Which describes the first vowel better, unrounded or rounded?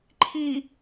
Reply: unrounded